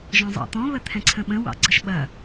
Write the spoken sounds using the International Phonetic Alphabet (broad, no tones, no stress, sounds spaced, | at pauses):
ʒ ɔ̃ zˤ ɑ̰ t̪ ɔ̃ β ə t̪ʰ ɛ̃ ǀʰ ə̃ ɓ ə̃ w ɑ̰ ɡ͡ǀ ə ʃ ɓ ɐ